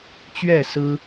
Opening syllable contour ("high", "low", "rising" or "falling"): falling